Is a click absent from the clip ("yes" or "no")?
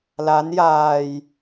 yes